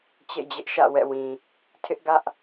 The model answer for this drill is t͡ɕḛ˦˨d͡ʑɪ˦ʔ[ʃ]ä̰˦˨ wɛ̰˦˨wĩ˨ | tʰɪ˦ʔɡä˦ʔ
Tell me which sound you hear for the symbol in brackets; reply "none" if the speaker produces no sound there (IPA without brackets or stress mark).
ʃ